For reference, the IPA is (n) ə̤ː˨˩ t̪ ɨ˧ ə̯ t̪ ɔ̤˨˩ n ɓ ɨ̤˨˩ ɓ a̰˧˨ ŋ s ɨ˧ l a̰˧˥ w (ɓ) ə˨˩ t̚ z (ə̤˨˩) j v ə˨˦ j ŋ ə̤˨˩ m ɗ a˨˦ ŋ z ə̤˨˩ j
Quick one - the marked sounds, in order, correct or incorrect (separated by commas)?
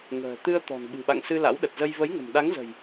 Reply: incorrect, incorrect, incorrect